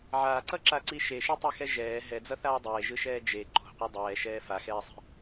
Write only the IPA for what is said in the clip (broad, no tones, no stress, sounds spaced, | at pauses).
ʕ aː ǀ ʌ ǁ a ǀ i ʃ e ʃ e tˤ e x ɛ ʒ ɛː ɦ ɛ d͡z ʌ θ aː dˤ eː ʒ ɯ ʃ ɛː d͡ʒ e ǃ o̤ qʷ ɛ dˤ ɛː ʃ ɛː f a x ɛː sˤ i̤